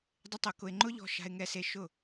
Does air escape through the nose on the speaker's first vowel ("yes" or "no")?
no